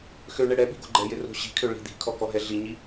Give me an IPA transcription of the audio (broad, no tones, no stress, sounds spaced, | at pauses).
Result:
x ø ɳ ɛ ɽ ɛ ɓ i̤ ɡ o̤ ɡ͡ǃ ɛ j ɪ r o̤ ɕ i̤ kʰ ø ɭ i̤ d̪ i̤ kʰ ɔ k ɔ ɦ ɛ ɮ i ɲ i